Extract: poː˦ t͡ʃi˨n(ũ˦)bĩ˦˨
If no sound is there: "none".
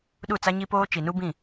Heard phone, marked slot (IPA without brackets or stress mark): u˦